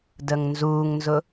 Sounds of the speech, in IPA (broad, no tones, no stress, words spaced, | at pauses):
dəŋnzuːŋnzʊ